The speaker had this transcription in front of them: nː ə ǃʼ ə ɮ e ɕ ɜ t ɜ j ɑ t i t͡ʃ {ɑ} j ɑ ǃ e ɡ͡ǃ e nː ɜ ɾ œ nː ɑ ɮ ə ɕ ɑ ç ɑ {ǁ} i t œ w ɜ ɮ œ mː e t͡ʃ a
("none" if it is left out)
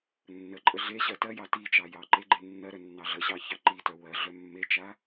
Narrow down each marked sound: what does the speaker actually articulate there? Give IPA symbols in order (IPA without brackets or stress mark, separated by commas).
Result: ɑ, ǃ